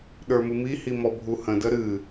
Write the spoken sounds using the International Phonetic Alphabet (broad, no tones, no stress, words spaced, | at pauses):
ɗə˞mɨmi himɔbʱuhə̃ dəɾɨ